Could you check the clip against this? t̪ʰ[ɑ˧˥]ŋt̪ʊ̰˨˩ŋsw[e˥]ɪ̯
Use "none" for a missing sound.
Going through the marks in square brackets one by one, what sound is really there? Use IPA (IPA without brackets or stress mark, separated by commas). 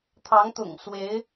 ɑ˧˥, e˧˥